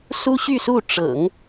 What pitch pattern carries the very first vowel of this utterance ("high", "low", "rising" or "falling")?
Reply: high